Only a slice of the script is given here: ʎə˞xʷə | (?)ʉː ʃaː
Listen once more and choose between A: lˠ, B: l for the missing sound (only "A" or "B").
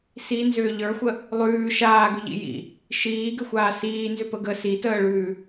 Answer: A